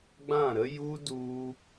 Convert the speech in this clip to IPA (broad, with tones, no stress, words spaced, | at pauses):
ɡ͡bã˦˨ɾə˦ ju˦ du˦